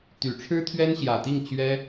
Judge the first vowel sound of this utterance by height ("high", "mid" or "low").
high